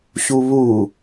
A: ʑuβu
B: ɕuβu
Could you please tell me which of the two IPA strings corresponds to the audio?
B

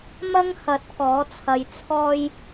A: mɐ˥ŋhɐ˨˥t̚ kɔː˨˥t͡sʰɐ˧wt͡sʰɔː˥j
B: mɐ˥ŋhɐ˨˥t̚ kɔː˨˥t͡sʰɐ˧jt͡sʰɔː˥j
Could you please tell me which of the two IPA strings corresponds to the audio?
B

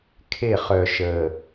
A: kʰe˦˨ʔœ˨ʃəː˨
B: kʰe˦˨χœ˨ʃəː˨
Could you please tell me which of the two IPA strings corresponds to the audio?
B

